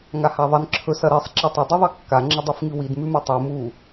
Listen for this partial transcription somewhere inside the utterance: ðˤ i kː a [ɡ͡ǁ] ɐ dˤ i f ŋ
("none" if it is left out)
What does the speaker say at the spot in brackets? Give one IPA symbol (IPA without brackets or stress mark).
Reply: ŋ͡ǁ